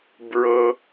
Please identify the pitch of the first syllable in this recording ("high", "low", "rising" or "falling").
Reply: low